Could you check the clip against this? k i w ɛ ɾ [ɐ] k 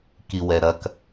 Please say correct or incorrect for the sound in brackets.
correct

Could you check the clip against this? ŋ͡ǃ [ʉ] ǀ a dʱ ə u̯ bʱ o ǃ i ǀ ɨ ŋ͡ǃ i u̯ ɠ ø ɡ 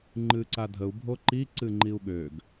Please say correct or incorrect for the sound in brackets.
incorrect: ɨ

